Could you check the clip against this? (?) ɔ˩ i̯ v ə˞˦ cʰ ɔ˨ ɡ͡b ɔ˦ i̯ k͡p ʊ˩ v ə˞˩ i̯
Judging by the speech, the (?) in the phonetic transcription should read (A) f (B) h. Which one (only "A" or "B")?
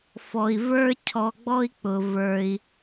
A